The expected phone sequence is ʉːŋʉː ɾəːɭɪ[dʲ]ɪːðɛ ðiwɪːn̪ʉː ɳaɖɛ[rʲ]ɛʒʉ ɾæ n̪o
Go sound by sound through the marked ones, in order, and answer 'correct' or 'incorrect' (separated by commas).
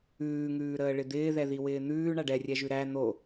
incorrect, correct